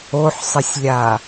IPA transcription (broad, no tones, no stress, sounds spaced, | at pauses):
o ħ sˤ ə sʲ lʲ a